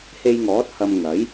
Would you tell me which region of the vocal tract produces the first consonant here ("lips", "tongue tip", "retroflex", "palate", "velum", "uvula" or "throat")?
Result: throat